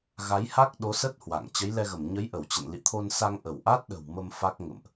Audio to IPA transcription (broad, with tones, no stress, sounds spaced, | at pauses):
ɣ a˨˦ j h a˦˥ k̚ ɗ o˨˦ s ə˦˥ t̚ h w a̰˧˨ ŋ t͡ɕ ə˨˦ j l ɛ˧ ɣ ə˧˩ m ɲ ə˨˦ j ʔ ə˧˩ w t͡ɕ ə̰˧˨ n l ḭ˧˨ t̪ʰ o˧ n s a˧ ŋ ʔ ə˧˩ w ʔ a˦˥ t̚ ɗ ə̤˨˩ w m ə˧ m f a˦˥ k̚ ŋ ə̰˧˨ m ʔ